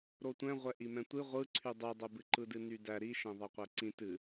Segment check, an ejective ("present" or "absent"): absent